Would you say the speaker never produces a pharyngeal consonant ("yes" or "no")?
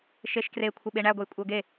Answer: yes